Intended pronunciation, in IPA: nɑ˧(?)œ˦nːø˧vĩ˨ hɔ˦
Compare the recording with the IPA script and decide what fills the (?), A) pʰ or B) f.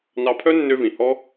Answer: A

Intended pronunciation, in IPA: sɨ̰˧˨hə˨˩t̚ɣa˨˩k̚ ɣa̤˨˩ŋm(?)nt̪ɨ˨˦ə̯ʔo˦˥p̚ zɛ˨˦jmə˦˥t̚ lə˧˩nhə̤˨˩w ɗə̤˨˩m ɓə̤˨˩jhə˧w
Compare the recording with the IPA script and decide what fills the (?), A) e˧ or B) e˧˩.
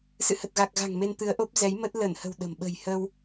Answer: A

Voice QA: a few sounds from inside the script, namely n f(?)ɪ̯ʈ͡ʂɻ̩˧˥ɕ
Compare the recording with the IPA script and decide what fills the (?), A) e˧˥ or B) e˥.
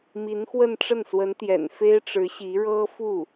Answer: B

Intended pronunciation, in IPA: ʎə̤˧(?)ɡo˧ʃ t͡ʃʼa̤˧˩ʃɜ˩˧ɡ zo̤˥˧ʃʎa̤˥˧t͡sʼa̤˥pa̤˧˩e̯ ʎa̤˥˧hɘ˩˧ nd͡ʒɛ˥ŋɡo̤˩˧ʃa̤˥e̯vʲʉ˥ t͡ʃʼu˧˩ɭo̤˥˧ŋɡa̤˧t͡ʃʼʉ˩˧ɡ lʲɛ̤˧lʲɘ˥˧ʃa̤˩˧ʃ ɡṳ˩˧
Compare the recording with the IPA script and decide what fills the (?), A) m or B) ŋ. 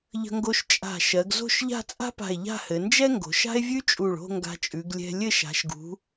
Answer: B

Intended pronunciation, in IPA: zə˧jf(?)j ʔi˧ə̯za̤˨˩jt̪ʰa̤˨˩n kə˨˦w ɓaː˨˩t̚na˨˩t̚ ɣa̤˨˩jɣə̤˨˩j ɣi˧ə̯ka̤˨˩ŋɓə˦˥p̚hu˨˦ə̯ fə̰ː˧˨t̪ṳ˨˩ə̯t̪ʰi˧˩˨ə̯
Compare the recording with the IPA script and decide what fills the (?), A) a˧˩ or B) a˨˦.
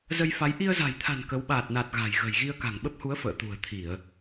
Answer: B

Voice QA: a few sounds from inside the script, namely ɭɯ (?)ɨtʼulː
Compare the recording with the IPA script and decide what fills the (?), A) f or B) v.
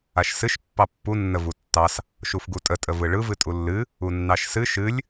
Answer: B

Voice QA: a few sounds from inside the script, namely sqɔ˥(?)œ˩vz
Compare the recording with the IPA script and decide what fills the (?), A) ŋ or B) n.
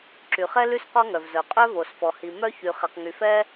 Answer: A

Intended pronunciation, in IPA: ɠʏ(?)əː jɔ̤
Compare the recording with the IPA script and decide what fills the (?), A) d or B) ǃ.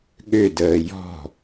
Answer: A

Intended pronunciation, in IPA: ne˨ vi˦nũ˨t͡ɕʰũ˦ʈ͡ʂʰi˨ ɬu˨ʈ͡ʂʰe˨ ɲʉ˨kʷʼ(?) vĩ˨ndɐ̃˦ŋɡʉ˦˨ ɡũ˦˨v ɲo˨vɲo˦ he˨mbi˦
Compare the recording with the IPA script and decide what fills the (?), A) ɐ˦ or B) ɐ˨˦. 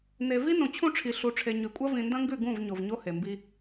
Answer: A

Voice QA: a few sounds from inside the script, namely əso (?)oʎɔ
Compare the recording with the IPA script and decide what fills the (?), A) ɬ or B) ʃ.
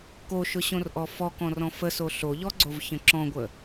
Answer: A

